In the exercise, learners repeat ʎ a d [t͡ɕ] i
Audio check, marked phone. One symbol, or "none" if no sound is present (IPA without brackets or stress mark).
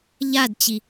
t͡ɕ